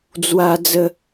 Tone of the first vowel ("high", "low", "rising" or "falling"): high